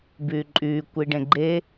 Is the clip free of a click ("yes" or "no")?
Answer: no